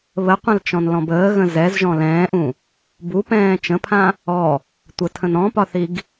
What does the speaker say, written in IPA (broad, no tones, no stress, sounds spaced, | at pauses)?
β ə qʷ ə̃ l t͡ʃ ɔ̃ n l ɔ̃ b əː ɣ ə̃ z ɛ z ʒ ɔ̃ l ɛ̃ː ʔ ũ | b u p ɛ̃ː t͡ʃ ə̃ pʰ ã | ɔ | tʷ ə tʰ ə̃ n ɔ̃ p ɒ θ i ɡ